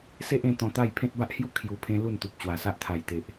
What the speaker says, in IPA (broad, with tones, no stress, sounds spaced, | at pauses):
s e˦ ʔ ẽ˧ t̪ ɔ̃˧ t̪ a˥˧ j pʰ ẽ˦ t̚ b a˦ ʔ h j u˥˧ kʰ j u˧ pʰ ẽ˦ l u˥˧ n t̪ u˨ p̚ t͡ɕ w a˨˩ s a˦ ʔ t̪ʰ a˨˩ j t̪ e˨ ʔ